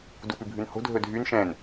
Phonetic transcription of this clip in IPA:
d u p ʉ bʱ ʉ n h o̤ dʱ ɵ dʱ y n ʃ ɛ̃ n

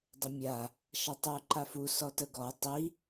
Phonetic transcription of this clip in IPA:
dˤ ə mʲ a | ʃ ɐ tˤ u ǃ a f u s ɔ t ə ɡ ɔ tˤ i

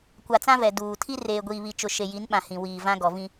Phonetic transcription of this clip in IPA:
kʷ a˨ t͡s ã˦ v ɛ˨ d uː˨ tʰ i˦ r eː˨ ɡʷ iː˨ β i˨ t͡ʃ ʊ˨ ʃ e˨ j i˨˦ n ɓ ã˨ h ĩ˨ w iː˨ v ã˦ ɡ ɔ˨ v ĩ˦

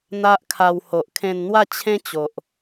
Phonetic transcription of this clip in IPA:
n̪ a˦ ʔ kʰ a˧ w h o˨ ʔ kʰ ẽ˧ n n̪ w a˥˧ t͡ɕʰ ẽ˦ t͡ɕ o˨ ʔ

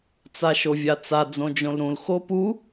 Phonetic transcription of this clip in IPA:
t͡s a ʃ o vʲ a t͡s a d͡z õ d͡ʒ õ l ɾ ũ l x o p u

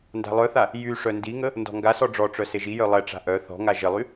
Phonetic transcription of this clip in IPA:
n d a̤ lˠ œ θ a | j y ʂ œ n d i ŋ ə | n d ɔ̤ ŋ ɡ a s ɔ ɖ͡ʐ ɔ ʈ͡ʂ œ s e ʒ i j œ lˠ ɛ ʈ͡ʂ a̤ ʔ œ θ ɔ̤ ŋ a ʒ ə lˠ y

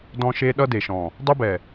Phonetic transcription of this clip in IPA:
d ɔ̃˦ ʃ e˦ ɗ ʌ˦ d e˨ ʃ ɔ̃˨ | dˤ ʌ˦ b ɛ˨

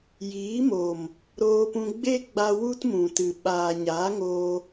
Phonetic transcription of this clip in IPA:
j iː˨˦ m oː˨ m | ɾ oː˧ p ũ˧ ɡ͡b e˦ ɡ͡b a˧ w u˦ t m ũ˨ t ɨ˨ ɓ aː˨ ɲ aː˨˦ ŋ oː˧

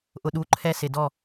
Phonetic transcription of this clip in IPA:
ʔ ʊ˨ ɗ u˨˦ ǃʰ ɛ˦ s ɪ˨ d ɔ˦˨

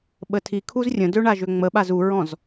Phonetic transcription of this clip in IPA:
ɓ ə tʰ i kʰ u z rʲ ə̃ d ø ɳ a ʒ ø ŋ͡m ə ɓ a z u ɹ ɔ̃ z

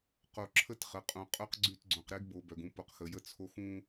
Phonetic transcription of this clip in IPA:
q o˨ ǁʰ ə˦ t χ ə˨ qʼ ũ˨ qʼ œ˦ q ɡ͡ǀ y˦˨ t ɡ͡ǀ õ˨ q ɾ e˦ ɡ b o˨ b œ˨ ɡ ũ˨˦ p o˨ q x ə˨ j ə˦ t͡sʰ o˦ x ũ˦

